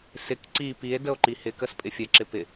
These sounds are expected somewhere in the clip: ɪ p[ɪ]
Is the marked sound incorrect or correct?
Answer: correct